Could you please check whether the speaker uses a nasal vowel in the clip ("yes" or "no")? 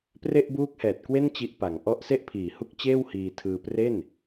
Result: no